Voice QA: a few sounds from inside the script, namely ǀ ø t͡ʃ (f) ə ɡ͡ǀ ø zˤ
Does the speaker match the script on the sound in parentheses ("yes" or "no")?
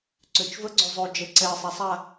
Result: no